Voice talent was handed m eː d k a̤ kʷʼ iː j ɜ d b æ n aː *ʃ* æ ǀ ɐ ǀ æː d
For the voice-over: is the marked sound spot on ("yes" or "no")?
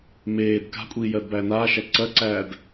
yes